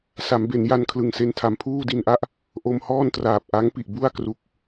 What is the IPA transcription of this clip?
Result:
s a˩˦ m b e˩˦ n j a˧ n kʰ l ɯ˨˩ ŋ s e˧ n tʰ a˨˩ m pʰ uː˥˩ d i˧ n ʔ a˥˩ ʔ | ʔ o˧ m h ɔː˥˩ n t r aː˨˩ p̚ ʔ a˦˥ ŋ p i˨˩ ʔ b u˥˩ a̯ k r u˨˩ k̚

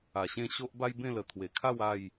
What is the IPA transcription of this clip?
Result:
a˨˩ ɕ ẽ˥˧ ɕ o˦ ʔ b a˦ j b ẽ˥˧ l ə˨˩ t̪ʰ w e˨˩ kʰ a˥˧ w a˥˧ j

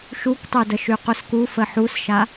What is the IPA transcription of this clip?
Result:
ʃ u k tˤ y d ə ʃ y q u s k u f ə ħ u s ʃ a

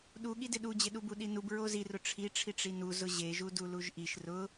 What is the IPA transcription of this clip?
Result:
ɗ u ɠ i d ɪ ɗ u d͡ʑ ɪ ɗ u b u ɗ i n u b ɹ o z i r ʊ ʈ͡ʂʰ i ʈ͡ʂʰ i ʈ͡ʂ i n u z ʊ ʑ e ʒ u d u l u ʒ ʔ i ʃ r ʊ

